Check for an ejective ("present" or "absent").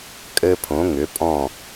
present